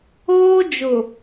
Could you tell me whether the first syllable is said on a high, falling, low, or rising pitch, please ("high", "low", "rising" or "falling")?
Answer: high